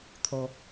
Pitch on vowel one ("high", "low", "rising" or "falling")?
low